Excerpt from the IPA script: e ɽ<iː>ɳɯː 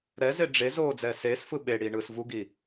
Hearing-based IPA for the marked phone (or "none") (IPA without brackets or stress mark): iː